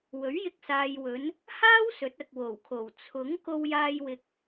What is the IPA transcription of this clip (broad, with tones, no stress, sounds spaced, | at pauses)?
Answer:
w ɵ˨˥ ɥ j ɪ˧ k̚ s aː˨ j w ɵ˨˧ n | h aː˥ w s ɵ˨˥ t̚ ɐ˨ k̚ w o˨˩ w kʰ o˨˩ w t͡sʰ ʊ˨˥ ŋ k o˧ w j aː˧ j w ɪ˨ k̚